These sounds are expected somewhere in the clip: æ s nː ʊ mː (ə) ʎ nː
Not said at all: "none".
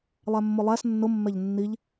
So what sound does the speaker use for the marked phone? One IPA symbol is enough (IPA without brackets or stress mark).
ɛ